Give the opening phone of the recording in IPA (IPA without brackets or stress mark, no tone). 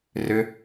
r